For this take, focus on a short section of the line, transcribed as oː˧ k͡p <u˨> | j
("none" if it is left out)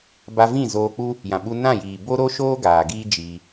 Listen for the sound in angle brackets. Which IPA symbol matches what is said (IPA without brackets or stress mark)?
u˦